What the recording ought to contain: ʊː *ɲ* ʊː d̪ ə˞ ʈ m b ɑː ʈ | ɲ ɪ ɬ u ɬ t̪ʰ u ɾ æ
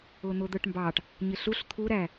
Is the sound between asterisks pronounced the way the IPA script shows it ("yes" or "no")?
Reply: no